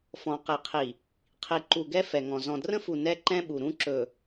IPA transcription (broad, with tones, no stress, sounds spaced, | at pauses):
f ɔ̃˨ q i˨ qʰ i˨ | qʰ i˨ ǃ u˨ ɡ ɛ˦ f ɛ˨ ŋ ɔ̃˨ z ɔ̃˨ d r ə̃˦ f u˨ n ɛ˦ ǃ ɛ̃˦ ɓ u˨ ɾ ũ˦ ǁ ɵ˨